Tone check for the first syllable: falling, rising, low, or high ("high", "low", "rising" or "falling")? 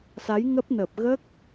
rising